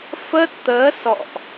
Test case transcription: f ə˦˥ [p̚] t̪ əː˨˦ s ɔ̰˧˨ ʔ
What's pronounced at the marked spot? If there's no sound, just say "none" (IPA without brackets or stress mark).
t̚